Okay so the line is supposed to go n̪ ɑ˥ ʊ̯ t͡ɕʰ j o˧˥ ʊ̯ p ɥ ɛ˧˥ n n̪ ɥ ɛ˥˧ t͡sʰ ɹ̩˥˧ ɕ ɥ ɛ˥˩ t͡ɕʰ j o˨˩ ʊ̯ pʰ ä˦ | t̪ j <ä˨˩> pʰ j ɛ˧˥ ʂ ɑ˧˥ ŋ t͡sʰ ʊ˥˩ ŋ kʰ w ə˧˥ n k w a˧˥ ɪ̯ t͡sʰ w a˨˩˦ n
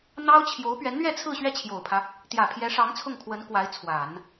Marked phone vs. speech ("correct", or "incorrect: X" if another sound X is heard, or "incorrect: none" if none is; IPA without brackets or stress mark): correct